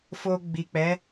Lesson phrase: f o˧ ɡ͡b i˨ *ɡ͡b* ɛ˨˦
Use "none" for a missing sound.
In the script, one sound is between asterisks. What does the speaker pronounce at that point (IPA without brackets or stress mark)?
k͡p